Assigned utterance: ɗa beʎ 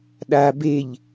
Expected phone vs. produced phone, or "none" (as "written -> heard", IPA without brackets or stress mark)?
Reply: none